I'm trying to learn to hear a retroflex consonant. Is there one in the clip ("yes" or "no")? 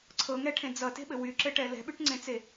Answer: yes